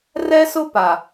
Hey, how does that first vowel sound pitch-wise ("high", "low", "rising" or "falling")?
high